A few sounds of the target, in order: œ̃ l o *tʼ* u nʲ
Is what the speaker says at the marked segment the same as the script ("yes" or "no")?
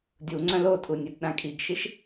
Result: yes